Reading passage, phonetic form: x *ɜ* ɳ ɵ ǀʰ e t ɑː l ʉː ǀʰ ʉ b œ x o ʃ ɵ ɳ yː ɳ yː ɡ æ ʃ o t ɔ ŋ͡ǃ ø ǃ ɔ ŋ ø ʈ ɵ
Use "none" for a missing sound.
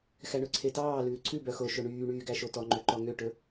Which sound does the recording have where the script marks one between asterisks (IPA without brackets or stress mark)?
æ